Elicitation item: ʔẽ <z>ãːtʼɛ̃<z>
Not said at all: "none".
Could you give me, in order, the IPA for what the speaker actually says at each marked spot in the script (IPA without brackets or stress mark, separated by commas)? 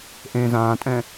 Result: z, none